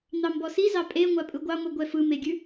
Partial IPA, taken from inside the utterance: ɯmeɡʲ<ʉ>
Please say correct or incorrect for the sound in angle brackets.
correct